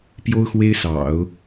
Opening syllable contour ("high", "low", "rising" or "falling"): high